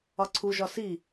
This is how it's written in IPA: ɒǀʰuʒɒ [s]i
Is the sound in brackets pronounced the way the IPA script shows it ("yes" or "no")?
yes